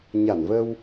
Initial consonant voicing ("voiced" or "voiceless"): voiced